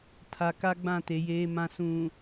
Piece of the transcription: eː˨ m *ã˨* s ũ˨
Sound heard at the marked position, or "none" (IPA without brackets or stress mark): ã˨